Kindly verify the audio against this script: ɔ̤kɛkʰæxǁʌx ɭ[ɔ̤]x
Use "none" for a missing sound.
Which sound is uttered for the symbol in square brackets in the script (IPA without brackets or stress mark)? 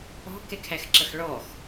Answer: ɔ